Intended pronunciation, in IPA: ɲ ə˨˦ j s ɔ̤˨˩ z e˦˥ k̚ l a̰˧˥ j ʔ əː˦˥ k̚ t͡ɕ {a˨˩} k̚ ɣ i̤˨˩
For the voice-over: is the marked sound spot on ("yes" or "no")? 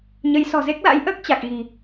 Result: yes